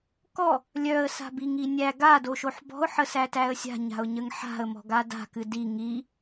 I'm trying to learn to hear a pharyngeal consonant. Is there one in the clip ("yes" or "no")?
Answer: yes